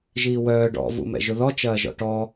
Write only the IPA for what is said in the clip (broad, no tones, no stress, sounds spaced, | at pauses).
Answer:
ʒ iː w œː ɖ ɔ̰ v ṵ m ɛ̰ ʒ ʊ ð ɔ t͡ʃ ɐː ʒ ɔ̰ ʈ ɔ